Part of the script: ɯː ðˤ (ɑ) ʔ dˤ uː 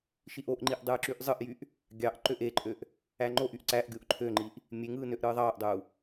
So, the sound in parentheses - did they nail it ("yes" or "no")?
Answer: no